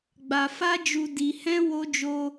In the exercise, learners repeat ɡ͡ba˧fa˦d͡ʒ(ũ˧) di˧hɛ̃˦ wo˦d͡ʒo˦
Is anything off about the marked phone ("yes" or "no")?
yes